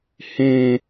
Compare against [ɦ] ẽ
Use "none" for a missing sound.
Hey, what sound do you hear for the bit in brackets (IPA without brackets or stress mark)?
h